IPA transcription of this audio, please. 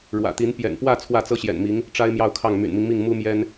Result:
ɻ w ä̰˨˩ t̪ i˧˥ n p j ɛ̰˨˩ n p w ä˥˧ t͡sʰ w ä˥˩ t͡s ɤ˥ ɕ j ɛ̰˨˩ n m i˧˥ ŋ | ʈ͡ʂ a˥ ɪ̯ m j ɑ˥˧ ʊ̯ kʰ ɑ˥˩ ŋ m y̰˨˩ n m i˦ ŋ m i˥˩ ŋ m u˥ m j ɛ˥ n

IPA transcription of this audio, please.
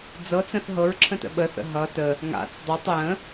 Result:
d͡z ɤ t͡s ə̃ θ ɦ ɤ ɹ ǁʰ ə̃ t ə̰ ɓ ə θ ə̰ ɦ ʌ t ə | ŋ a̰ t͡s dˤ ɤ tˤ j ə̃

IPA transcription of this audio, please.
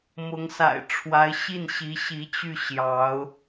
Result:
m ʊ˧˥ ŋ s a̰˨˩ ɪ̯ ʈ͡ʂʰ w a˧˥ ɪ̯ ɕ i˥˩ n ɕ i˧˥ ɕ i˧˥ t͡ɕ y˥˩ ɕ j ɑ˧˥ ʊ̯

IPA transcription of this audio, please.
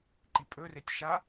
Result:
ǃ i pʼ ɵ r e tʲ ʃ a

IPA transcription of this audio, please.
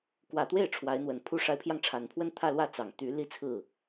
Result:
k w ä˨˩ t̪ w e˥˩ ɪ̯ ʈ͡ʂʰ w a˧˥ ɪ̯ n̪ w ə˨˩ n pʰ u˥˩ ʂ a˧˥ ɪ̯ pʰ j ɑ˧ ŋ ʈ͡ʂʰ a˨˩ n pʰ w ə˥ n t̪ʰ ä˥˧ l w ä˥˩ t͡s ɑ˨˩ ŋ t̪ y˧˥ l i˥ t͡sʰ ɹ̩˥˩

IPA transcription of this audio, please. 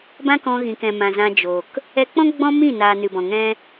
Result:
b ã˦ k ɔ̃˧ ɣ ĩ˨ k ɛ̃˨ m ã˨ z ã˧ d͡ʒ o˨ k | ɛ˧ k͡p ɔ̃˦ ɡ͡b ɔ̃˦ m ĩ˦˨ n aː˨ n ɨ˨ b ɔ̃˨ ŋ ɛ̃˦

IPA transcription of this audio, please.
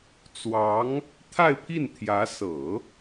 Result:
t͡s w ɑ˧˥ ŋ | t̪ʰ a˥˧ ɪ̯ pʰ i˥˩ n t̪ʰ j ä˧˥ s ɤ˨˩˦

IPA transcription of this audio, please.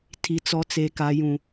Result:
tʰ i˨ t͡s ɔ˨ t͡s e˨ k a˨ j ũ˨

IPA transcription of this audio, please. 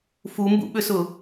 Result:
f u m b ṵ ɓ ʏ s ʊ

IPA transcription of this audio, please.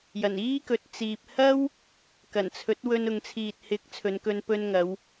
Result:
j ɐ˨˩ n iː˥ k ɵ˨ t̚ t͡s iː˨ p̚ h ɐ˥ w | k ɐ˨˩ n t͡sʰ ɵ˨˥ t̚ w ɵ˧ n ʊ˨ ŋ t͡sʰ iː˨ t̚ h ɪ˨˥ k̚ t͡sʰ ɵ˨˧ n k ɵ˧ n p ɵ˧ n ŋ ɐ˨˧ w

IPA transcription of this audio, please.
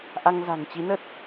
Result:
ʔ a˧ ŋ z a̤˨˩ ŋ t͡ɕ i˨˦ n ə˦˥ t̚

